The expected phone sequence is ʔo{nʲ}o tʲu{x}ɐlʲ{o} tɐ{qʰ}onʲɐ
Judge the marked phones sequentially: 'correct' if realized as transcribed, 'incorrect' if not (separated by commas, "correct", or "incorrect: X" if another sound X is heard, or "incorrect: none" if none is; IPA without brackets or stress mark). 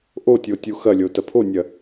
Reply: incorrect: tʲ, correct, correct, incorrect: pʰ